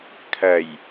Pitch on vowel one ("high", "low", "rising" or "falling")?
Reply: low